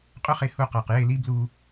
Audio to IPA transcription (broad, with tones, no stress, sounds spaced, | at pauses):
qʼ ʊ˦ χ e˧ h u˧ q a˨ q j e˦˨ l i˦ b l u˧